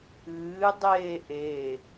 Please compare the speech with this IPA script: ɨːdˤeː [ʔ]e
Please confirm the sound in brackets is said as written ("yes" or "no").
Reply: yes